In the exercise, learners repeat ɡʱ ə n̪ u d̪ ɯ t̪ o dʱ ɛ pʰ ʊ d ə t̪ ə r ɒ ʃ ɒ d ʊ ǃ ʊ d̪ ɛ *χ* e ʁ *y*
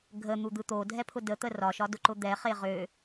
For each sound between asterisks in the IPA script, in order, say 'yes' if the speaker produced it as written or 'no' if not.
yes, no

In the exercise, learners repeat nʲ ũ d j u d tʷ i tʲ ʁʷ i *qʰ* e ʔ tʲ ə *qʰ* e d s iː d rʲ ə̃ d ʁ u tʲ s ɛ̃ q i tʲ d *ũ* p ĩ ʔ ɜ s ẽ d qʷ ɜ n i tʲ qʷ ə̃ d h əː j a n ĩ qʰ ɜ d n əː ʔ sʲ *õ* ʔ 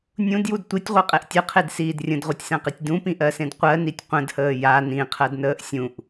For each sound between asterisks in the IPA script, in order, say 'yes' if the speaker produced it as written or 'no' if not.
no, yes, yes, no

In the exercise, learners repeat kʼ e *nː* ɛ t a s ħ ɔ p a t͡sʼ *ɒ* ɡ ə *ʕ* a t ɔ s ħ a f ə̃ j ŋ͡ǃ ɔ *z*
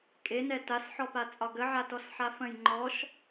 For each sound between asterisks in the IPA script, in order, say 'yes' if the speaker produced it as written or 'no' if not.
no, yes, yes, no

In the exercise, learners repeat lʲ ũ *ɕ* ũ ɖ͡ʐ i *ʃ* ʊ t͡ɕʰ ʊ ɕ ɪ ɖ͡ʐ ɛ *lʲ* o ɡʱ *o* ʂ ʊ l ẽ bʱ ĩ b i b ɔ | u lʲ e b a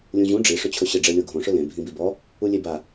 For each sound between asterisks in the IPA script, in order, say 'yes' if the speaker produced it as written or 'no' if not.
no, no, yes, no

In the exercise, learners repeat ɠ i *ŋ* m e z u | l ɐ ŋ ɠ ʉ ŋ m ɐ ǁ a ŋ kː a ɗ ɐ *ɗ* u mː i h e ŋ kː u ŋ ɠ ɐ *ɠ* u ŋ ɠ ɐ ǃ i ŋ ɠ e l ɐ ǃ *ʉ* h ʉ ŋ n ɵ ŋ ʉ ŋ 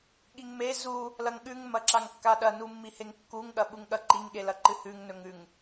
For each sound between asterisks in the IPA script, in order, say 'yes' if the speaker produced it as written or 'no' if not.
yes, no, no, no

